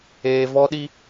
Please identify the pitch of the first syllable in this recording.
high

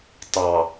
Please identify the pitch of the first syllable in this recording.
low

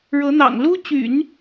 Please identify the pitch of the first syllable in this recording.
rising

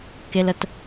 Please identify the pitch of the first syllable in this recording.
high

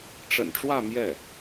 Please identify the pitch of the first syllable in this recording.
low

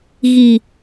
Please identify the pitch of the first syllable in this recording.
low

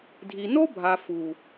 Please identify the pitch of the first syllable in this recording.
low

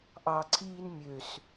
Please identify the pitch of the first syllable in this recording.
low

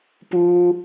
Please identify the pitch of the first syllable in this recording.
high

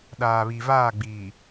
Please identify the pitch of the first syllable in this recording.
low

